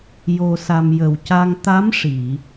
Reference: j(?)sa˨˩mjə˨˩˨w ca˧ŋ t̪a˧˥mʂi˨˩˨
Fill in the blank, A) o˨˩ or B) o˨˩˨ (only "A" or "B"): A